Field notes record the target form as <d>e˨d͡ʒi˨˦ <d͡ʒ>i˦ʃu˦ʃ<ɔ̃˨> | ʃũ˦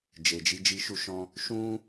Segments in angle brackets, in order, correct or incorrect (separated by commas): incorrect, correct, incorrect